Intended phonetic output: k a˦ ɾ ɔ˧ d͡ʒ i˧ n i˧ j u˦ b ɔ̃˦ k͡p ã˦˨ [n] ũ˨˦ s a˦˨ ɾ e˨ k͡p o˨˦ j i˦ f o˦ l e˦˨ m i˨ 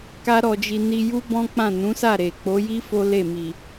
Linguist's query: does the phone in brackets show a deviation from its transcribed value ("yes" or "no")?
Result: no